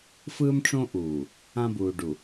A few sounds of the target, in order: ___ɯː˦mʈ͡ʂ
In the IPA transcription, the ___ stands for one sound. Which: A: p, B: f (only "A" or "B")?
B